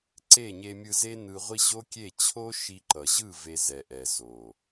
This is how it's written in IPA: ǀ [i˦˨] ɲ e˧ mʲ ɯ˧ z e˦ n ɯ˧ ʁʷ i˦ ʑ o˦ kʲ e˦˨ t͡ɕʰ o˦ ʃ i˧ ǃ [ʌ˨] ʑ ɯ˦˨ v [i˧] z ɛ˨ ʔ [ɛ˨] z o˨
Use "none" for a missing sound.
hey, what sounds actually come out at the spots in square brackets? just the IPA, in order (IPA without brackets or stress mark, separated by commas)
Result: e˦˨, ʌ˨, e˧, ɛ˨